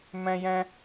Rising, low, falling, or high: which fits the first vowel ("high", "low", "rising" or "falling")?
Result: high